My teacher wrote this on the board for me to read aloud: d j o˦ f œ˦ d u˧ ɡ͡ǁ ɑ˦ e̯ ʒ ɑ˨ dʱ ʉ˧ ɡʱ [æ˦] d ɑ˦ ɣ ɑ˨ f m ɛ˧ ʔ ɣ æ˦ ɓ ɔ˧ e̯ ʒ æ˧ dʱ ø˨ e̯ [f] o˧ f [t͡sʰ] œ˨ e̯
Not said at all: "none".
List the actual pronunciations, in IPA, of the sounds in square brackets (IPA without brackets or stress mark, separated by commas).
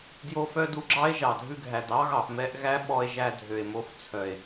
æ˨, m, t͡sʰ